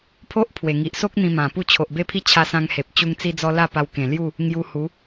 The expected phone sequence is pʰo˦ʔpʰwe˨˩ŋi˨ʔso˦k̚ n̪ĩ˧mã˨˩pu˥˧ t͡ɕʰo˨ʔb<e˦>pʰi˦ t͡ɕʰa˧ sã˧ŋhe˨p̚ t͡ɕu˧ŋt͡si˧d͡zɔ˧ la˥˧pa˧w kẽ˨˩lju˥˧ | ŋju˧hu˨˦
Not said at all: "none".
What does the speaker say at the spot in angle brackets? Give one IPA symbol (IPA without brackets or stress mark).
e˥˧